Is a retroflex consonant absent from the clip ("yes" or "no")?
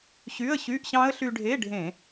no